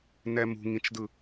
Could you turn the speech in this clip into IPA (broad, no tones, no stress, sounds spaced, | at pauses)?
n ɛ m ṳ ŋ ĩ t͡ʃ d ɯ